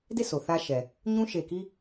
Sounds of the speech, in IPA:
d e˦˨ sʰ o˨ θ ä˦ ʃ ɛ˨ | ɲ ũ˦ ʃ e˨ k i˦

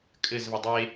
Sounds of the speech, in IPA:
kʼ ɘ z v ɘ dˤ e

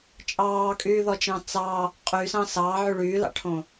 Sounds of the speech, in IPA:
t͡ʃʼ ɑː kʼ yː ð ɔ t͡ʃ ɑ̃ t͡s ɑ | qʼ y s ɑ̃ s ɑː ʕ y ɭ yː l ɑ̰ ʈʰ õ

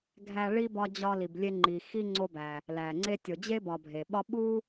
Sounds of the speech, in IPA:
ɡʱ æ˦ ɭ i˥ b ɒ˦ d͡ʑ ɒ˦ l i˨ b lʲ e˦ ŋ͡ǃ i˨ x i˥ ŋ͡ǀ o˦ b æ˩ | l æ˩ ŋ͡ǀ e˥ tʲ o˨ d͡ʑ e˥ b ɒ˨ bʱ e˩ ɓ ɒ˥ ɓ u˥

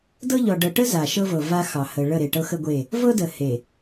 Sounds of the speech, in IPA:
d ɤ˦ ʎ ɔ˨ ɖ ɤ˨ ʈ ə˦ z a˨ ʃ ɤ˦ v ɤ˨ v a˦ x ɑ˨ h ə˨ ɭ ə˦˨ ɾ e˨ ʈ ɤ˦ x ə˦ ɡʷ e˦˨ | v ɤ˦ d ə˨ h e˨

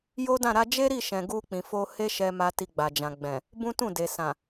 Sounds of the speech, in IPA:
j o˦ d ã˦˨ ɾ a˧ d͡ʒ e˦ ɾ i˦˨ ʃ ɛ̃˨ ɡ u˧ k͡p ĩ˨ f o˧ h e˦ ʃ ɛ˧ m a˧ t i˧ ɡ͡b a˨ d͡ʒ ã˨ ɡ͡b ɛ̃˨ | b ũ˦ t ũ˦˨ d e˨ s ã˨

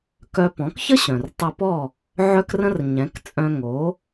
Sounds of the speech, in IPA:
k œ˧ p ɔ̃˩˥ k ç ə˥ ɕ œ̃˩ r tˤ ɘ˧ p ɔ˥˩ | ʕ œ˥ k r ə̃˥ r ɲ ɛ̃˩˥ k t͡sʼ œ̃˧ ŋ o˩˥

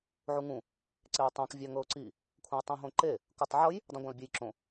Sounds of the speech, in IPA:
ʕ u ŋ ũ | ǀ e ʊ̯ tˤ ã k vʲ a ŋ ɤ ʊ̯ ǀ i | kʷʰ ã ʊ̯ tˤ ũ ɦ õ ǃ e | k u tˤ ʕ ɤ j | dˤ ũ ɡʷ ã l bʲ e j ǁ õ

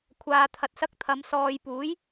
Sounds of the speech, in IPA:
kʷʰ aː˨ t̪ʰ ɐ˨ t̚ s ɐ˧ k̚ t̪ʰ ɐ˨˧ m s ɔː˨ j p uː˨˥ j

